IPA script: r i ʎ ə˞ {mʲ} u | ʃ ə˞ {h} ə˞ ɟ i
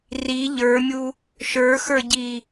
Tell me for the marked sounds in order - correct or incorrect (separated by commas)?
correct, incorrect